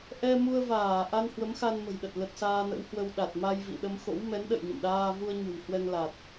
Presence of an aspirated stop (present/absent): absent